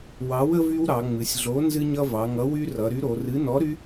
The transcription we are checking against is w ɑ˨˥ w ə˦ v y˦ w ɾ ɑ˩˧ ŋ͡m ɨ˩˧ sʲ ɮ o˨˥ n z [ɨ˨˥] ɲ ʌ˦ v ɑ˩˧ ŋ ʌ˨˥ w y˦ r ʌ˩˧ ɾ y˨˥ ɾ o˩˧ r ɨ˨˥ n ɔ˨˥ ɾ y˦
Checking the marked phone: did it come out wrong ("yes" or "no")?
yes